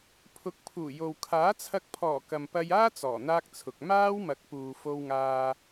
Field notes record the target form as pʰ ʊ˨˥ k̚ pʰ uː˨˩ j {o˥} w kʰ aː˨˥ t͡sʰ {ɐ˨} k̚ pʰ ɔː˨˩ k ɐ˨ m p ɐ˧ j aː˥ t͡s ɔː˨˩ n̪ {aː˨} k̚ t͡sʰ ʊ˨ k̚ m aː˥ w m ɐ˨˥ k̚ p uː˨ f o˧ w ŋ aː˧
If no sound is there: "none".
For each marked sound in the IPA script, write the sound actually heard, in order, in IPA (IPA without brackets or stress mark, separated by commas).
o˨, ɐ˧, aː˥